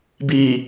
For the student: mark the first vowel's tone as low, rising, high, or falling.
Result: low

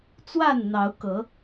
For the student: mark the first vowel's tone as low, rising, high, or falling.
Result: falling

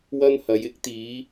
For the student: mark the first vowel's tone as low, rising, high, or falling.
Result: high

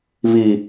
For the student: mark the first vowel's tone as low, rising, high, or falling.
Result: low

